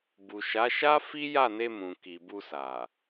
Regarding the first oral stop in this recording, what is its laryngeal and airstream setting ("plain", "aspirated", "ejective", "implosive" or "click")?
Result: plain